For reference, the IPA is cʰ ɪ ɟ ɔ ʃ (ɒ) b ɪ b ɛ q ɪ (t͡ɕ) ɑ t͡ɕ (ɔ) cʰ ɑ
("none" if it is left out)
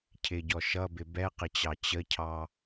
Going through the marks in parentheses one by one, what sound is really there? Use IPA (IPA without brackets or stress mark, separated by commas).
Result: ʌ, t͡ɕ, ə